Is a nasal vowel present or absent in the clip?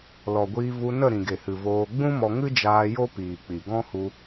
present